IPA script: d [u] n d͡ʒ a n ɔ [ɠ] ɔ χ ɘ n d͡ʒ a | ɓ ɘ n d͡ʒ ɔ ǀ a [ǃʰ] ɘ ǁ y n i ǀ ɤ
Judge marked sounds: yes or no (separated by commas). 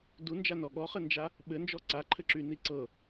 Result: yes, yes, yes